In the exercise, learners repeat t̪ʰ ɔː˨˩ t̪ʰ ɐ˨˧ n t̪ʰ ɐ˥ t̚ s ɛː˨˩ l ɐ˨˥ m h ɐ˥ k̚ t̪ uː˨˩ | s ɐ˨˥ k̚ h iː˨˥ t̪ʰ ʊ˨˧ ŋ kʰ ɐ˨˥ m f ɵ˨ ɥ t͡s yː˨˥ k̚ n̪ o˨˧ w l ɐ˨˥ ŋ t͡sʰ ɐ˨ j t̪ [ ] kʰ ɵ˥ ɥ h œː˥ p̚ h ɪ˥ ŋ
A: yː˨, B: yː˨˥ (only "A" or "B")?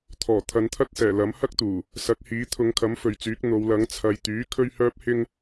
B